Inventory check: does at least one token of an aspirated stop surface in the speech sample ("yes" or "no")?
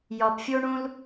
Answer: no